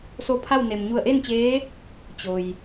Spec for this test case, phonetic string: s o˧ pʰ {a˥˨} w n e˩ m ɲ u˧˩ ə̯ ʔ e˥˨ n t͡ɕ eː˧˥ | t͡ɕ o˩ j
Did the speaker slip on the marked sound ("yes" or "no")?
no